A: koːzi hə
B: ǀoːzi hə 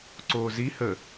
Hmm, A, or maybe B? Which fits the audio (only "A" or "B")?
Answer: B